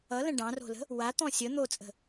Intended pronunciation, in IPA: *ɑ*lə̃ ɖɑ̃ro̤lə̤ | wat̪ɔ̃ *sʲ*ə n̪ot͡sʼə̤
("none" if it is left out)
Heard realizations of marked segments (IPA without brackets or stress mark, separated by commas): ʌ, sʲ